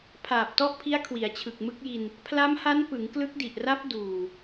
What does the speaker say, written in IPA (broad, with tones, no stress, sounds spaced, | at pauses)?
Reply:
pʰ aː˨˩ p̚ t ɔ˦˥ ʔ pʰ i˦˥ a̯ kʰ w i˩˦ a̯ t͡ɕʰ ɯ˨˩ k̚ m ɯ˦˥ k̚ j i˧ n | pʰ l a˦˥ m h a˦˥ n p ɯ˩˦ ŋ k l ɯ˦˥ k̚ d i˨˩ ʔ r a˦˥ p̚ d uː˨˩